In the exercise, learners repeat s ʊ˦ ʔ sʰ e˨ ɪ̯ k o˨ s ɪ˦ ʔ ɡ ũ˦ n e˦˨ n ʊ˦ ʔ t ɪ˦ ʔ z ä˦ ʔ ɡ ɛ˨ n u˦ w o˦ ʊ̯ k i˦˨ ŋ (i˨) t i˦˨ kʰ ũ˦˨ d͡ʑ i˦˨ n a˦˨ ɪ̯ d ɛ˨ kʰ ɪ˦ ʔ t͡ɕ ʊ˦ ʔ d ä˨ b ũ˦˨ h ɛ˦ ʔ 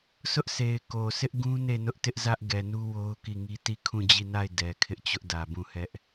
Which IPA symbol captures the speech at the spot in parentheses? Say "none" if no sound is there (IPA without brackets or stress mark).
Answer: i˦